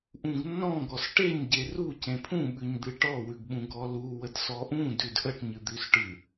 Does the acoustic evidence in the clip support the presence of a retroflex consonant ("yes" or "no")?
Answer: yes